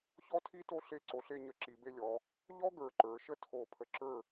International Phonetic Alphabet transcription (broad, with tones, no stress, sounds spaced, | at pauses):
ç ɔ˥ tʰ i˥ t o˥ ɬ e˥˧ ǀ o˧ ɬ e˥˧ ɲ ə˧ ǁ i˩˧ b e˧ lʲ ɔ˩˧ | ʎ ɔ˥ ɡ ə˞˧˩ ǃ ə˞˩˧ ʃ ə˥ tʰ o˧˩ pʰ ə˧ ǁ ə˞˥˧